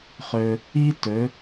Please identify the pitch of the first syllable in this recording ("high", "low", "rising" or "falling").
high